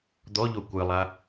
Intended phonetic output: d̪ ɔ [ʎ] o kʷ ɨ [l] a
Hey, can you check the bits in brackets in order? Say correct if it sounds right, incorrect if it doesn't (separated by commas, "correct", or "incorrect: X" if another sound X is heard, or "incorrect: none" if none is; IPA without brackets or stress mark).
correct, incorrect: lˠ